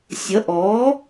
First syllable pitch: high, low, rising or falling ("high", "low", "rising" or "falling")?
rising